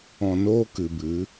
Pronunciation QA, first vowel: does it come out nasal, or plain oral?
nasal